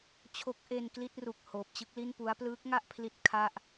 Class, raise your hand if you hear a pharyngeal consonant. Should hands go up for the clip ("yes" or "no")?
no